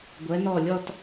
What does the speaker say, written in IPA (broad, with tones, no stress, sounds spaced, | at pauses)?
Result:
ɡʷ ɛ˩˧ n ɔ˧˩ lʲ ɔ˥˧ t